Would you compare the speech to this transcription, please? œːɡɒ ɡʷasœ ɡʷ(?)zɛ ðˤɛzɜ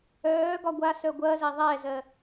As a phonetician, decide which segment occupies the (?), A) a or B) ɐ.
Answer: B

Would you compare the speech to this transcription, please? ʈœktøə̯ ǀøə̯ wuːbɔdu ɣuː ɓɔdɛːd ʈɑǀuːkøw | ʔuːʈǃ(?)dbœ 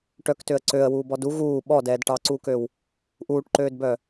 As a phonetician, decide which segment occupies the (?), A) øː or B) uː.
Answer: A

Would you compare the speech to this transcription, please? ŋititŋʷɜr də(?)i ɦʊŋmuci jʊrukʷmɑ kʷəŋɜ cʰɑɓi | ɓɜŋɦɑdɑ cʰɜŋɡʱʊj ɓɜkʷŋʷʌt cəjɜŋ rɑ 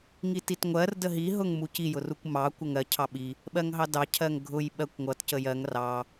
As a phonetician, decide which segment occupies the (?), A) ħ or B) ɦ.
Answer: B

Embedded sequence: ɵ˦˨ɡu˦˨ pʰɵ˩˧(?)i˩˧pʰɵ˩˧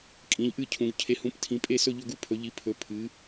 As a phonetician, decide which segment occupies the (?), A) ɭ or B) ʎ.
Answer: B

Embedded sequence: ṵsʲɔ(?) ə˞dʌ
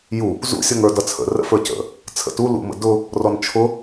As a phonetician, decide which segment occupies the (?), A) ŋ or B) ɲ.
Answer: A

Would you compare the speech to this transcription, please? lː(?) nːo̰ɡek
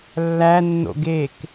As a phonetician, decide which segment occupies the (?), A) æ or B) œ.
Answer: A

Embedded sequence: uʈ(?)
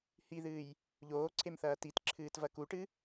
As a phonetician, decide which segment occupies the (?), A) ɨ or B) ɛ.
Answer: A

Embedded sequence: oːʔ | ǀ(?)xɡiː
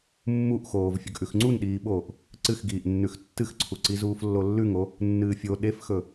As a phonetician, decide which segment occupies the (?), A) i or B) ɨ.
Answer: B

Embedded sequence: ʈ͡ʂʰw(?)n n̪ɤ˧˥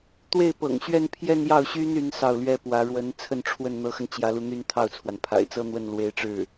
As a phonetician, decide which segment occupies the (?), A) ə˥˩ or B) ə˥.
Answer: A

